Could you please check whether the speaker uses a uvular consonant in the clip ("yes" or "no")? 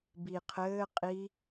yes